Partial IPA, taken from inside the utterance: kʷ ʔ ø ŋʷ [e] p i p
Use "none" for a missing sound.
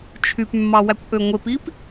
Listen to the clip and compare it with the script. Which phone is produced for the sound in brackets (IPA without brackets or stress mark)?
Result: e